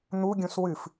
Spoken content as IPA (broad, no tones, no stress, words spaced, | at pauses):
n̪uɡʲũs wɨf